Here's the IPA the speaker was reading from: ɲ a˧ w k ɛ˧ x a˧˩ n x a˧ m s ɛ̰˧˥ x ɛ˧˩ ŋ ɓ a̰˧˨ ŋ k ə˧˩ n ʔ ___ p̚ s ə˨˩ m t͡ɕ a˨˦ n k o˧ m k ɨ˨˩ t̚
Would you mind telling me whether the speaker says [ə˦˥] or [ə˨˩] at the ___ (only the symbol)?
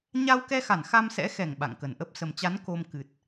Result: ə˦˥